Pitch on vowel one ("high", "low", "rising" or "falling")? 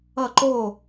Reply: falling